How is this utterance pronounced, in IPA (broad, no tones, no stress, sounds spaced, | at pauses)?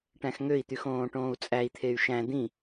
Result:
ʈ æ̃ x ŋ ø i̯ t̪ y x õː ʈ õː u̯ t͡sʼ æ i̯ t̪ʰ e y̯ ʃ æ̃ d̪ ĩ